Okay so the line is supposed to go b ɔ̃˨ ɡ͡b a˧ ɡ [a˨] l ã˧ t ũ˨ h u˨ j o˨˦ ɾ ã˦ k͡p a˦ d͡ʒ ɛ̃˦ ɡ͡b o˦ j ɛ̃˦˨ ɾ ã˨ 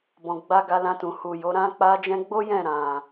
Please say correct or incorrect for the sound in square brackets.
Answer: incorrect